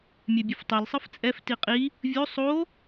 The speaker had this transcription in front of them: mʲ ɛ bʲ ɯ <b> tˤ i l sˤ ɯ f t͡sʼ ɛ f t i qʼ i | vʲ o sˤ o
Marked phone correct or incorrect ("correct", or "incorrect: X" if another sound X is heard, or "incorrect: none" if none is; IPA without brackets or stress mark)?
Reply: incorrect: f